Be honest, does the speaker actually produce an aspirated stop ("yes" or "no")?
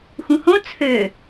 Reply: yes